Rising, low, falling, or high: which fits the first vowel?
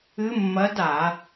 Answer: rising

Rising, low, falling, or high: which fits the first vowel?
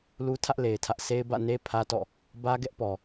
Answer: high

